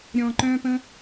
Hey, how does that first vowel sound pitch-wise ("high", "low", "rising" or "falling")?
low